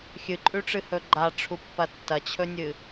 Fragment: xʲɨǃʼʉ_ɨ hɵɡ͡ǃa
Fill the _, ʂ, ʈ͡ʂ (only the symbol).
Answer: ʈ͡ʂ